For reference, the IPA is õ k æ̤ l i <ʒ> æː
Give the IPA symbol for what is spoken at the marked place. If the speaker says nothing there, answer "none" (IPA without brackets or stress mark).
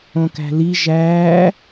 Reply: ʒ